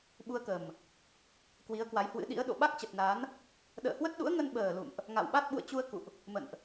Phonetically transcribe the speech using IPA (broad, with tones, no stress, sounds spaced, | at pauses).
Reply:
ɓ u˧ ə̯ k ə˨˩ m | k w i˨˦ ə̯ k w a˨˦ j h w ɨ̰˧˥ ɗ ḭ˧˥ ə̯ ɗ o̰˧˨ ɓ a˦˥ k̚ t͡ɕ ə˨˩ t̚ n a˨˦ n | ɗ ə̰ː˧˨ h w ə˦˥ t̚ ɗ ṵ˧˥ ə̯ ŋ ə˧ n ɓ əː˨˩ l ṵ˧˨ m ʔ | ŋ a̰˧˨ w ɓ a˦˥ t̚ ɓ ṵ˧˨ ə̯ t͡ɕ u˧ ə̯ k ṵ˧˨ ʔ | m ə̰˧˨ n ʔ